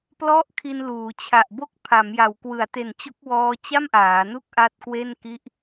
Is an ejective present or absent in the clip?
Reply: absent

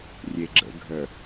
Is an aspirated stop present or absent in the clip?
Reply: absent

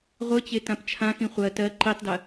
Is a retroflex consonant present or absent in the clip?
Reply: absent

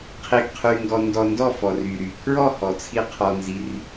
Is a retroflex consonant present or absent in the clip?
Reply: absent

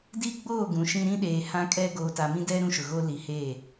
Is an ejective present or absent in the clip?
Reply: present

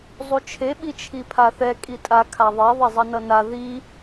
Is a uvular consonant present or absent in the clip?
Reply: absent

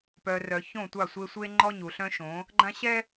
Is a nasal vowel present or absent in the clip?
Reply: present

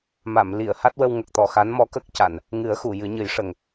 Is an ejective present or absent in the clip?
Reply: absent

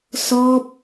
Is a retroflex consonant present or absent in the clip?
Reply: absent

